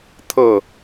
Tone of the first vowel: falling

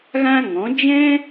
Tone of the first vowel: high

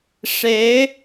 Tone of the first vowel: rising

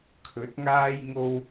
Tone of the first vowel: rising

